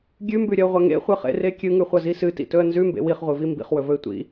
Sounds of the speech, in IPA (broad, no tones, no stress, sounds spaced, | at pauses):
ɡʲ ʉ m b ʉ ɾʲ ɐ ʊ̯ ʁʷ ɐ ŋ ḛ χʷ ɨ χ ḛ r e kʲ ɨ ŋ ʉ χʷ ɐ z i s ɨ t ḭ t ɵ ə̯ n z ʉ m b ḛ w i χ ʁʷ ɨ v i m b ḭ χ w ɵ v ɵ ɪ̯ tʷ ḭ